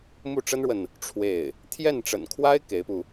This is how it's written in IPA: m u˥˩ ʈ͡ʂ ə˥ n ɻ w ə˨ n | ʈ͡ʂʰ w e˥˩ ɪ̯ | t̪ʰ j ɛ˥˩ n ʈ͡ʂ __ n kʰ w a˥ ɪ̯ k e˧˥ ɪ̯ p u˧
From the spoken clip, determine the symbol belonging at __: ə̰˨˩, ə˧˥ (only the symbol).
ə̰˨˩